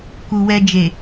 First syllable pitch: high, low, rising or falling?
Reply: low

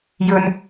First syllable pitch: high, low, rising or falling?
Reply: low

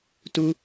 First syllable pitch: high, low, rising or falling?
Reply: high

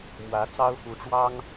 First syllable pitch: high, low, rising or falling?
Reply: rising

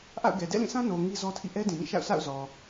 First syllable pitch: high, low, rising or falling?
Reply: falling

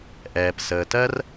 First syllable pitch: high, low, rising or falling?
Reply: low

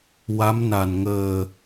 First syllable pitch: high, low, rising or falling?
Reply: rising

